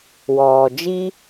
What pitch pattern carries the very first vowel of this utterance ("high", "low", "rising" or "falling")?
low